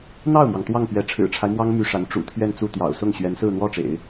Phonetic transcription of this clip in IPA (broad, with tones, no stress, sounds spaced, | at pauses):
n̪ ɑ˥˩ ʊ̯ m w ɑ˩ ŋ t̪ w ɑ˥˩ ŋ p ɥ ɛ˧˥ ʈ͡ʂʰ ɻ̩˨˩ ʈ͡ʂʰ a˦ ɪ̯ m w ɑ˥ ŋ m y˥ ʂ a˧˥ n ʈ͡ʂ ṵ˨˩ t̪ʰ ɥ ɛ˥˧ n t͡s u˥˩ t̪ j ɑ̰˨˩ ʊ̯ s ʊ˥˩ ŋ ɕ ɥ ɛ˧˥ n s ɹ̩˥˧ n̪ w ɔ˥˩ ʈ͡ʂ ḛ˨˩˦ ɪ̯